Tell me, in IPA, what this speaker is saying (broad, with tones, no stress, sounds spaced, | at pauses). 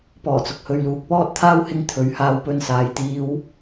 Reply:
p ɔː˨˩ t͡s ʊ˨ k̚ h ɵ˨ ɥ l uː˨ k̚ p ɔː˧ t̚ t̪ʰ aː˧ w h ɪ˨˧ ŋ t̪ʰ ɵ˨˥ ɥ h aː˧ w p ɵ˧ n s aː˨ j t̪ iː˧ w